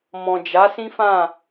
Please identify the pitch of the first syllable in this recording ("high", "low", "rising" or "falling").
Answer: low